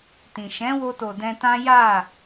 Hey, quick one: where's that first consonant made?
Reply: tongue tip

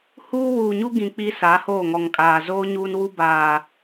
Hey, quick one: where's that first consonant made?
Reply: throat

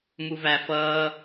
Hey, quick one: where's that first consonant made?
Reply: lips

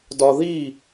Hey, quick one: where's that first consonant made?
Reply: tongue tip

